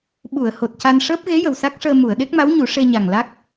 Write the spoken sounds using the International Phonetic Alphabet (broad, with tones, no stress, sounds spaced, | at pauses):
ɓ u˨˩˨ ə̯ h o˨˩ t̚ c a˧ n ʂ əː˦˥ p̚ ɣ e˧˥ j ə˨˩ w s a˦˥ k̚ ʂ əː˧ m u˨˩˨ ə̯ ɗ e˦˥ k̚ m a˧˥ w ɲ u˨˩˦ ʂ e˧ ɲ a˨˩ ŋ l a˦˥ k̚